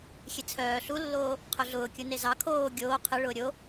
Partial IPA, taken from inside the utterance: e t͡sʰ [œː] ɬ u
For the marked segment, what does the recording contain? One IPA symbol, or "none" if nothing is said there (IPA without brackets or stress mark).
œː